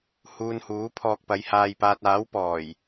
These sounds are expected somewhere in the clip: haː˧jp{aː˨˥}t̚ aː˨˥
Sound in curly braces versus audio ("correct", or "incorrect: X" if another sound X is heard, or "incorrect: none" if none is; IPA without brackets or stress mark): incorrect: aː˧